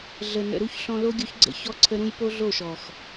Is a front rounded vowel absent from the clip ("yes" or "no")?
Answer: yes